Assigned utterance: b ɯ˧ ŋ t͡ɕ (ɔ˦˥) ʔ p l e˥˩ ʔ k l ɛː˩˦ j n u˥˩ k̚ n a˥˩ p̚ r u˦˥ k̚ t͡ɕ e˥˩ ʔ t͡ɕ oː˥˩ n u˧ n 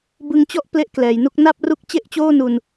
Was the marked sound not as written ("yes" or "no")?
yes